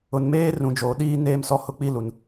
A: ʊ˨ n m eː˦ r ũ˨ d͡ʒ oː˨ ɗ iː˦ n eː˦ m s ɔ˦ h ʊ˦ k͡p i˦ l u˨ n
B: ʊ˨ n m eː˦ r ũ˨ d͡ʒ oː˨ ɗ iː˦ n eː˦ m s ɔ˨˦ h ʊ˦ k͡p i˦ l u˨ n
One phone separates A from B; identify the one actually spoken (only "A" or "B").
A